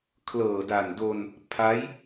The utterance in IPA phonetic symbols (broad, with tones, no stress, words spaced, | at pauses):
kʰlɤː˨˩da˨˩ndo˧n | pʰa˦˥j